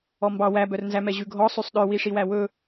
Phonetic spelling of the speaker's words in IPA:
ɔ m b ɑ w æ b œ r n z æ m ɛ ʑ ʉ ɡʱ ɔ sˤ y sˤ ɗ œ w i ʂ i w æ w ɵ

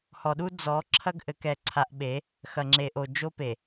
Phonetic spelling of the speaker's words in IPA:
h ɔ˨ ɗ u˦ d͡z ɔ˨˦ ǁʰ ɐ˦ ɡ ʔ ɘ˨ k ɛ˨ ǀʰ a˨ ʔ ɓ e˨˦ | x ɐ˨ ŋ͡ǁ e˨ ʔ o˨ d͡ʒ o˦ p e˨

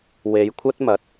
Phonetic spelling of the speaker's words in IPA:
w e˨˧ j kʷʰ ɐ˥ t̚ m ɐ˨˥ t̚

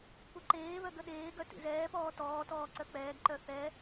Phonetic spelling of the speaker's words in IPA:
p u ǃ eː β œ ɡ ə ɗ eː ɡ œ t ḭ z ɛː p ɔː t ɔː t ɔː ǀ œ k͡p ɛː ɡ ǃ œ θ ɛ

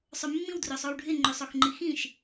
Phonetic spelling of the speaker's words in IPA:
sˤ ɵ mː ĩ w d r ɵ sˤ o w ɖʱ ɪ ŋ͡ǃ ø sˤ o x ŋ͡ǃ i x ĩ ʃ

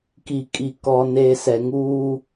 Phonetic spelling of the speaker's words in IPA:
k i˨ kʼ i˨ k ɔ˨ n eː˨ s ɛ˨ ŋ uː˦

